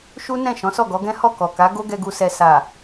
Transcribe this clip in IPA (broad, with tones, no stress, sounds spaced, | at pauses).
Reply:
ʃ u˦ n ɛ̃˦˨ ʃ ɔ̃˨˦ s ɔ˦˨ ɡ ɔ˨˦ ɡ ɛ̃˦ h ɔ˦˨ k ɔ˨ k a˨˦ ɡ o˦ ɡ ɛ˧ ɡ u˧ s ɛ˨ s a˨